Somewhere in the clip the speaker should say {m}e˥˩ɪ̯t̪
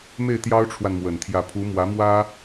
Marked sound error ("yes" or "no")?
no